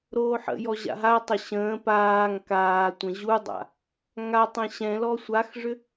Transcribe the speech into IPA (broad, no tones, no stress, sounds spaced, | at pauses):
ɾ oː ħ ə̰ j ɔ ʑ a̰ ɦ a tˤ ə ɕ ə̃ː p aː ŋ k aː tʷ ə̃ ʑ u dˤ a̰ | ŋ a tˤ ɛ̃ ɕ ɛ̃ l ɔ sʷ a x ʐ ʏ